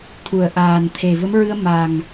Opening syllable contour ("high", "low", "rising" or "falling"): low